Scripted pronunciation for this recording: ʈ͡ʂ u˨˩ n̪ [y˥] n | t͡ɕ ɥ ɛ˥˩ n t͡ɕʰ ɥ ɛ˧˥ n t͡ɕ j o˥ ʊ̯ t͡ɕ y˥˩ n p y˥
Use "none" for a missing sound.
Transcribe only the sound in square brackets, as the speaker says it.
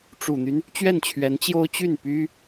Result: y˦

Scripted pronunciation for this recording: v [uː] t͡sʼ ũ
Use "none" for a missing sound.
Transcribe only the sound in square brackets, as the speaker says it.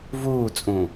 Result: uː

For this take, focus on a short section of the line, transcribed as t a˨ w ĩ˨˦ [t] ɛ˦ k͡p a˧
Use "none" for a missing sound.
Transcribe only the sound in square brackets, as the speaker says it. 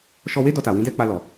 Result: d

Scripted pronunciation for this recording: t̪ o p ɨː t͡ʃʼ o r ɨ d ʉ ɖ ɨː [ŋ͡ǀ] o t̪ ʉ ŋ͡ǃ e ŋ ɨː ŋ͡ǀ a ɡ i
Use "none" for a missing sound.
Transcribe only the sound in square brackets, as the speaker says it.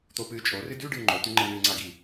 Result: ŋ͡ǃ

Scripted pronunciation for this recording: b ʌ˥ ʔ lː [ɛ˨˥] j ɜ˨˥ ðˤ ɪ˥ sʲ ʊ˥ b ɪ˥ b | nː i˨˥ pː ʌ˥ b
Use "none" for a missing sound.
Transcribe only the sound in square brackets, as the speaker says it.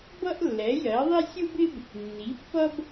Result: ɛ˨˥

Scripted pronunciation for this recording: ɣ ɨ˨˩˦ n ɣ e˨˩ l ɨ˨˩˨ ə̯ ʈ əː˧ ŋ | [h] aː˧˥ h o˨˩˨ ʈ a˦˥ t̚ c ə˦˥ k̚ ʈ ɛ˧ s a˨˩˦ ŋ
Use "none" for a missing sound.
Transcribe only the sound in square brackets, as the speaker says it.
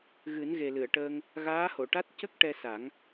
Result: ɣ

